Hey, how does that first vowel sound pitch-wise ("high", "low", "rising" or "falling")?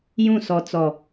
falling